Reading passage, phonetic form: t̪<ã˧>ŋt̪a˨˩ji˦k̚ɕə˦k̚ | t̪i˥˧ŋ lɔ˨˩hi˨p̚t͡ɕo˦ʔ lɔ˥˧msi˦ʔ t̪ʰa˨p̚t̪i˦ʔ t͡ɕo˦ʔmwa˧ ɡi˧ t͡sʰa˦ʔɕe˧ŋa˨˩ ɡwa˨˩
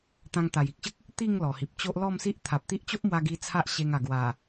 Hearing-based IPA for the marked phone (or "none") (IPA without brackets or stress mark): ã˧